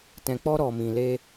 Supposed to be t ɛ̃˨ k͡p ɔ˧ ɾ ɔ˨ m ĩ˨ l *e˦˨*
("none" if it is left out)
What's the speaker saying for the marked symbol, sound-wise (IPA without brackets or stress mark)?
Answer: e˧